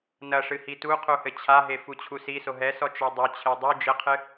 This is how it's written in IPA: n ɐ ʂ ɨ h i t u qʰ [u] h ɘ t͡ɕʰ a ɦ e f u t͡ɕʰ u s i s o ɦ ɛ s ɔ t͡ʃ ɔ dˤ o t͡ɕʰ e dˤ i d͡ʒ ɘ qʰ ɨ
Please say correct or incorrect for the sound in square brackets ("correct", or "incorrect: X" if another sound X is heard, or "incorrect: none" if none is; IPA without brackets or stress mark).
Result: correct